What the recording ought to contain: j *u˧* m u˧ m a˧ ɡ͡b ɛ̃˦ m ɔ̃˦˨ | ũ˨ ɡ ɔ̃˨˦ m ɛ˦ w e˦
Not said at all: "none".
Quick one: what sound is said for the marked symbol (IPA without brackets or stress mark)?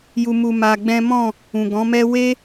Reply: u˧